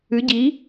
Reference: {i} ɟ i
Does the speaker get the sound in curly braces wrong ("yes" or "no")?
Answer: yes